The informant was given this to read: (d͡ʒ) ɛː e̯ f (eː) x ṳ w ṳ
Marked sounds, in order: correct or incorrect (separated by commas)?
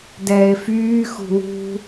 incorrect, incorrect